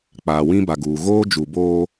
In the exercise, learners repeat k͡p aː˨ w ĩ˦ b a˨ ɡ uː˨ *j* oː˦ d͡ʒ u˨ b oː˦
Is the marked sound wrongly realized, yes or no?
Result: yes